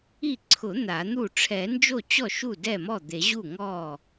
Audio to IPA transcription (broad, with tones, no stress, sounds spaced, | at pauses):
i˥˩ ǀʰ ʊ˨˩˦ n̪ a˨˩˦ n̪ u˥˩ ʈ͡ʂʰ ɛ˨˩˦ n d͡ʒ o˥˩ t͡ɕ ɔ˥˩ ʃ u˥˩ d ɛ˥˩ m ɔ˥˩ d̪ e˨˩˦ ʑ u˥˩ ŋ ɔ˥˩